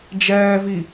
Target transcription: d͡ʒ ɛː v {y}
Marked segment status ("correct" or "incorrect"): incorrect